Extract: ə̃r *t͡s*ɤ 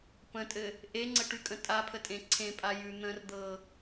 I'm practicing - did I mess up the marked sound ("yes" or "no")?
yes